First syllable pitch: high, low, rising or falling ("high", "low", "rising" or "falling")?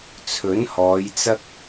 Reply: rising